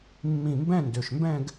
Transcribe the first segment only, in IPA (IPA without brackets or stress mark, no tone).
mː